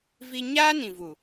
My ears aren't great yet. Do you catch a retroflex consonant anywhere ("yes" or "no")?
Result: no